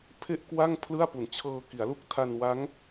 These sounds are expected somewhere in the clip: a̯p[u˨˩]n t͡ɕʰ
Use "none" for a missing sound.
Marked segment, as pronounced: u˨˩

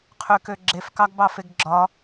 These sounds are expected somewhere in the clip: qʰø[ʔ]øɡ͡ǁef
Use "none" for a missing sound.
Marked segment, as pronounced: k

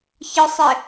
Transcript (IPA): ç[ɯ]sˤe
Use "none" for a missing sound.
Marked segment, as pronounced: ɯ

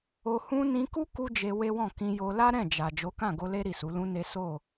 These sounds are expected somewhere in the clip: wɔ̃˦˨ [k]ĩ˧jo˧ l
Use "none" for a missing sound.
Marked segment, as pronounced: k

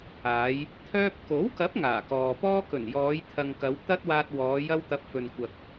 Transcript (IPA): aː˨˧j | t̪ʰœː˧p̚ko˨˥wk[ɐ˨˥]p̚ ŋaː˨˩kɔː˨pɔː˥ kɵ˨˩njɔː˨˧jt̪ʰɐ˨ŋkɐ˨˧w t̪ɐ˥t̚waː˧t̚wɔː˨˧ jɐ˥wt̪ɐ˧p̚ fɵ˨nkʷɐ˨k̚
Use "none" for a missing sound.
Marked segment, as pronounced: ɐ˨˥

